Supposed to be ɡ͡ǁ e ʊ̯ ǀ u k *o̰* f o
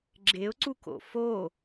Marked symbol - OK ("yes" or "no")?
yes